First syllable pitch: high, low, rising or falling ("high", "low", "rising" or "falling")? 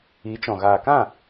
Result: rising